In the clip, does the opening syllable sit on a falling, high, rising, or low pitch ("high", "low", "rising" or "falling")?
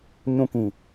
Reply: high